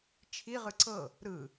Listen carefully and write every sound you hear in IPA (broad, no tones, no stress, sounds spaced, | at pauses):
t͡ʃʰ i ʁ ɯ ǀ ɤ | ɾ ɯ